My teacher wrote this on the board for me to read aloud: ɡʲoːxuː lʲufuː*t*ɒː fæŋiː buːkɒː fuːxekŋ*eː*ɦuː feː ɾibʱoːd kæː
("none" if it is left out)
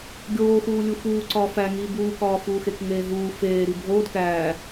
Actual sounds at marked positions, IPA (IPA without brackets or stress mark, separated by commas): ǀ, eː